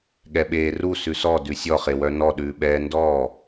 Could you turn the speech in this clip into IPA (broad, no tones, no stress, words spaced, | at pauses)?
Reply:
ɠɛɓeːru sʉsɔ dʉsʲɔχe wœnɔɗʉːɓɛː ndɔː